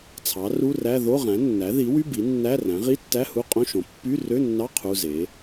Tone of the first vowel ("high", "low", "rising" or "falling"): rising